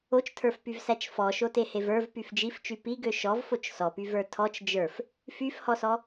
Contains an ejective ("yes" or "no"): no